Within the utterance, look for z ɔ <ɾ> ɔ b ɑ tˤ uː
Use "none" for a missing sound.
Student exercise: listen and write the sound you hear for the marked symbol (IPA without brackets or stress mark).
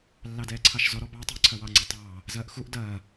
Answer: ɾ